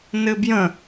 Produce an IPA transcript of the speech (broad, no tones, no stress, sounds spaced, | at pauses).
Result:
n ɘ b j ə̃